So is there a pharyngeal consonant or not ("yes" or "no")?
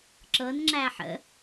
yes